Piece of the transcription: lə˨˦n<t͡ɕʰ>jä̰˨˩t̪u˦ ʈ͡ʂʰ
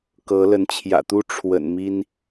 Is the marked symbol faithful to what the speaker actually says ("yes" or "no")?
yes